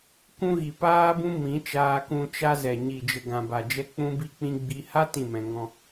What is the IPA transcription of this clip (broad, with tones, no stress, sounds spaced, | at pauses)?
kʷ ũ˧ ɣ i˨ p aː˧ b ũ˧ m ĩ˨˦ t͡ʃ aː˧ k ũ˧ t͡ʃ a˧ z ɛ˨ ɲ i˨ d͡ʒ ə˨ ɡ ã˨ b a˨ d͡ʒ ɛ˧ k͡p ũ˦ b i˦ k͡p ĩ˦ ɡ͡b i˧ h a˦ t ĩ˦˨ m ɛ̃˧ ŋ ɔ̃˧